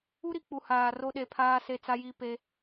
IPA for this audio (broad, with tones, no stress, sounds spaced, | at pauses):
u˦ ɾ i˨ k͡p u˨ h aː˨ r o˦ ɗ e˨˦ pʰ aː˦ s e˦ t͡s a˦ j i˦ p e˦